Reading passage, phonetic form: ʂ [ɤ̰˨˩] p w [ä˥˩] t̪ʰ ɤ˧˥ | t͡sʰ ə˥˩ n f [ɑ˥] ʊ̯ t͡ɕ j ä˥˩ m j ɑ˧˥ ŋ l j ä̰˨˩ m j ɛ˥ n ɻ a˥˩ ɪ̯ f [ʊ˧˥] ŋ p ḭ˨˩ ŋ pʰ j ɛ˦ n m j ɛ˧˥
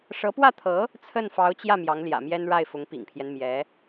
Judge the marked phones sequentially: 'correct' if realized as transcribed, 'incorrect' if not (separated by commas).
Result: incorrect, correct, incorrect, correct